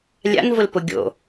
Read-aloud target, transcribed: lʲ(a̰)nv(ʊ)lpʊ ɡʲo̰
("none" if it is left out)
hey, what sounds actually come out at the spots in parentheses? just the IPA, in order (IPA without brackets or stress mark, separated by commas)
a̰, ʊ